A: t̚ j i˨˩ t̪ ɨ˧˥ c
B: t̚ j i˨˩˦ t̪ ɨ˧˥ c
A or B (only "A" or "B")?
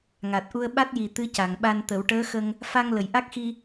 A